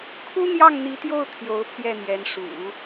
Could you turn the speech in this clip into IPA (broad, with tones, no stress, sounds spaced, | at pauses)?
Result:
kʰ u˥ n̪ j ɑ˥˩ ŋ n̪ i˧˥ t̪ j o˥˩ ʊ̯ t̪ʰ j o˧˥ ʊ̯ pʰ j ɛ˥˩ n̪ j ɛ˧˥ n ʂ ṵ˨˩˦